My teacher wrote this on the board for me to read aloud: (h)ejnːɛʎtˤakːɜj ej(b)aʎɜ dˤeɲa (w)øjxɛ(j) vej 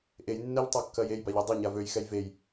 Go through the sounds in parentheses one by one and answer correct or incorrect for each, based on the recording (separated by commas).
incorrect, correct, incorrect, correct